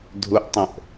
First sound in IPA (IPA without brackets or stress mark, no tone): dʱ